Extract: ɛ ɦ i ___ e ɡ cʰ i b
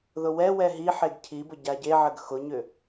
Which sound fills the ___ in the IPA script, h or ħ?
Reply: ħ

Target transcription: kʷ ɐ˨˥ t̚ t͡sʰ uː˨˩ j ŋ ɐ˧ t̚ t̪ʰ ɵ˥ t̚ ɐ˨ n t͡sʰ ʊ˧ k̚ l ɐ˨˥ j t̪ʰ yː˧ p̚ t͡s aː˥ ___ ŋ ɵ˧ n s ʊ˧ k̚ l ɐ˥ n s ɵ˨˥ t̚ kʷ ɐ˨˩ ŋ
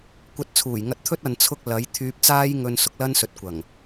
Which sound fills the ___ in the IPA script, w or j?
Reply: j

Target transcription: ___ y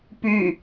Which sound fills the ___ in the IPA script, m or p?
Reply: p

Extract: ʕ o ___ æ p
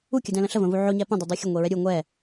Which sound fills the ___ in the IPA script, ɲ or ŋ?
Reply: ɲ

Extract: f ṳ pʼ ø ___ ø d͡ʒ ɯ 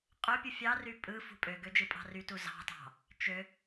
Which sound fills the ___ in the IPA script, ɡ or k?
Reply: ɡ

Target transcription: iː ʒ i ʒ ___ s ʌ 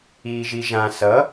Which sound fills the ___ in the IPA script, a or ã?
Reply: ã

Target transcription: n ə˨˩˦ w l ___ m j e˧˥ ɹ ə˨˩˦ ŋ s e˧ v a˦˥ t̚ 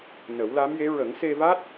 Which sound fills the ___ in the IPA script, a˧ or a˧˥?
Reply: a˧˥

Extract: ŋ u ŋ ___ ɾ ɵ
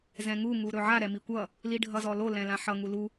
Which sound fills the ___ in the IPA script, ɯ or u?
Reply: u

